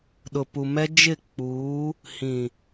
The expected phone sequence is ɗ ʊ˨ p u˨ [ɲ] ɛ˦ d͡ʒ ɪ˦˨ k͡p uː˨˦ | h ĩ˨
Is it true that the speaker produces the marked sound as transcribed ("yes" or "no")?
no